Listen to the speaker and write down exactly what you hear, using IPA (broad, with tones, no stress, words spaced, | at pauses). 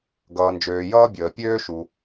ɡʌː˩nd͡ʒøː˩ jʌː˥bʲəː˩pʲøː˥ʃu˩